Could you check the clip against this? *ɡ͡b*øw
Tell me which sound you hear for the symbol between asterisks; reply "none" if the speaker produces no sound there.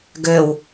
ɡ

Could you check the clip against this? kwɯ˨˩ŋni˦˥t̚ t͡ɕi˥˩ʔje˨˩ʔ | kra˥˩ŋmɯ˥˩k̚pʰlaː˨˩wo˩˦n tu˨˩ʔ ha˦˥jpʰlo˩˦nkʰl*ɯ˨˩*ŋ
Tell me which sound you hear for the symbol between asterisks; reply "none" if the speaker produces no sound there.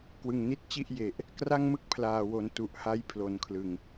ɯ˨˩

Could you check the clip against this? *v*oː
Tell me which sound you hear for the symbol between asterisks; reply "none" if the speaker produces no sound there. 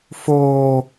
f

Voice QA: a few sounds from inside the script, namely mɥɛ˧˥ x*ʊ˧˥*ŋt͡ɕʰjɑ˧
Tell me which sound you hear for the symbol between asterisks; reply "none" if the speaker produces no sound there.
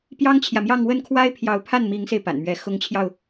ʊ˧˥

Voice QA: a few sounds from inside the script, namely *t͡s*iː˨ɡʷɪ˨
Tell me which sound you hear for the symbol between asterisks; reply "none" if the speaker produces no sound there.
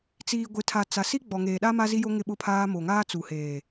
t͡s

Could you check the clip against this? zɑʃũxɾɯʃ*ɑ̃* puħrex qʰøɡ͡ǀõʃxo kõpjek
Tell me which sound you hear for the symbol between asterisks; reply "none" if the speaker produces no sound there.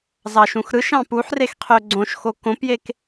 ɑ̃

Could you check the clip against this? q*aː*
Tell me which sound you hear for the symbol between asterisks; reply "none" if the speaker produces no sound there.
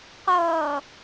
ʌː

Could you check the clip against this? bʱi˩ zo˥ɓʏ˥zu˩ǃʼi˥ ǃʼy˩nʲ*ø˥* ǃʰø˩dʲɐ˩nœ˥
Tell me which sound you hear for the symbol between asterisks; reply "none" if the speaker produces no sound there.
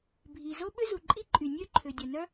ø˥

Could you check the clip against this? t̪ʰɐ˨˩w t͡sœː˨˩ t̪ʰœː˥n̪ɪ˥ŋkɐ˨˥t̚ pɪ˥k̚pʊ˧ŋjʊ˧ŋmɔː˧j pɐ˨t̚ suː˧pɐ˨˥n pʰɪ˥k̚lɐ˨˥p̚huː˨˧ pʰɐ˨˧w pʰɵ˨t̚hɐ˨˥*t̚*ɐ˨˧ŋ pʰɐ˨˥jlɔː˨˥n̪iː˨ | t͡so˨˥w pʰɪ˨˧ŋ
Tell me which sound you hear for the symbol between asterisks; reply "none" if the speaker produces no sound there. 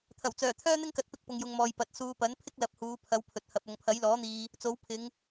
p̚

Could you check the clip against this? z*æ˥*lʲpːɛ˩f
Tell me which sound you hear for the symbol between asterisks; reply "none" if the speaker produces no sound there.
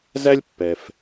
æ˥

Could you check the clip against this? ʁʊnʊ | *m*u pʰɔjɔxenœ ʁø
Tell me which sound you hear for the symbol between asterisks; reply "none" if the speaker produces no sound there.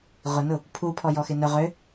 pʰ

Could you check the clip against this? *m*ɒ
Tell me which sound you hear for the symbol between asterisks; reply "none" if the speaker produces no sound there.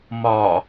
m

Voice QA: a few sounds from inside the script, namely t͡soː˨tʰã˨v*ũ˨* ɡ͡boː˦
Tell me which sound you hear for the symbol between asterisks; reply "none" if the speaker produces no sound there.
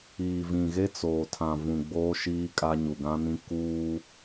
ũ˨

